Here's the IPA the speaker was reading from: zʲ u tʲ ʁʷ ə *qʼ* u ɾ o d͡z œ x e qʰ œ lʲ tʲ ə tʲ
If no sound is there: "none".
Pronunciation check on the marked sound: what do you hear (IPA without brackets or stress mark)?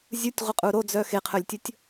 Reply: qʼ